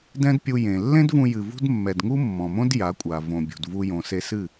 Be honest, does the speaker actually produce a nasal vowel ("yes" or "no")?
yes